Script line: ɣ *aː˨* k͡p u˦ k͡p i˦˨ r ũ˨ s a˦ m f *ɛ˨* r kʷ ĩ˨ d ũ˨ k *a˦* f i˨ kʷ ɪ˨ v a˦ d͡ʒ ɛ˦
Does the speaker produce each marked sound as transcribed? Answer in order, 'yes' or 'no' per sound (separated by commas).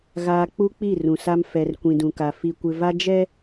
yes, yes, no